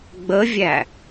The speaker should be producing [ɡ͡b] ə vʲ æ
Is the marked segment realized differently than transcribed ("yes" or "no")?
no